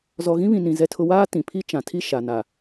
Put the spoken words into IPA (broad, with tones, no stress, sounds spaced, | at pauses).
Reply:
z ɔ˨ ɣ ĩ˦ β ĩ˨ n ĩ˨ z ɛ˦ tʰ ʊ˦ w aː˦ t ĩ˨ pʰ i˦ t͡ʃ ã˨ tʰ i˦ ʃ a˨ n a˨